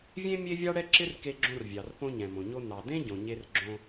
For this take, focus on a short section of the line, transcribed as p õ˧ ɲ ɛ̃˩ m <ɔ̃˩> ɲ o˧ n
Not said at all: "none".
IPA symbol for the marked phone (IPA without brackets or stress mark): õ˩